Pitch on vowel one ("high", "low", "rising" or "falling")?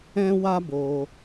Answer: high